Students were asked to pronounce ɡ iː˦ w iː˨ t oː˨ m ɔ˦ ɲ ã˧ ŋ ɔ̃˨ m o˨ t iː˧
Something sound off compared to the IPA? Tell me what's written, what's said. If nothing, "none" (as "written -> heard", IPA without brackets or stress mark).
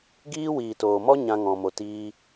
none